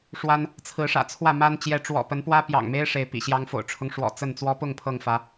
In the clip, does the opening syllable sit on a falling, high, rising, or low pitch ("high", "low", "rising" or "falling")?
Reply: high